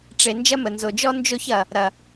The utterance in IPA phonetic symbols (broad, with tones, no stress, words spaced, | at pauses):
ʈ͡ʂe˨ nd͡ʒɐ˦mə˨nzo˨d͡ʒɔ˦ nd͡ʒo˦çɐ˨ | ɾɐ˨